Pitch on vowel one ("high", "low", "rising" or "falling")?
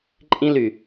high